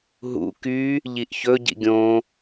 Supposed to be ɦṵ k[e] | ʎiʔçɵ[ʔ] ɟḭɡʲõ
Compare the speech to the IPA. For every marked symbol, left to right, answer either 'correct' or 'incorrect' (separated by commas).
incorrect, incorrect